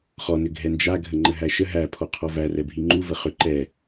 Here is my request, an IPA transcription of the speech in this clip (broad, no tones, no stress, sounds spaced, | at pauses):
χ ɔ n ʏ ɡʱ ɛ n d͡ʒ a ɡʱ ə ŋ͡ǃ ə ɦ æ ʃ ə ɦ æ pʰ ɔ qʰ ɔ v æ r ɛ bʱ i ŋ͡ǃ u v ə χ ʏ ǃ ɛ